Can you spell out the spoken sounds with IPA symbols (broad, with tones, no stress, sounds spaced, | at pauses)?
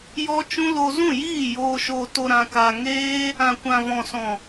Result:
j ɔ˦ t͡ʃ ũ˦ l o˦ z ũ˦˨ j iː˦˨ j oː˧ ʃ o˧ t o˧ ɾ ã˧ k a˧ ŋ eː˦ | ã˨ kʷ ã˨ v ɔ̃˨ s ɔ̃˨